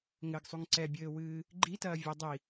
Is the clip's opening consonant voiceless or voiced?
voiced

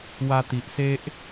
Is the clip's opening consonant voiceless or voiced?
voiced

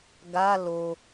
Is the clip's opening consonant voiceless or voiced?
voiced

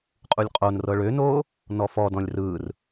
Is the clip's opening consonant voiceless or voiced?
voiceless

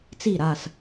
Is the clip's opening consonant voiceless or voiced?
voiceless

